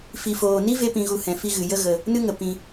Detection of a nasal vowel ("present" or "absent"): present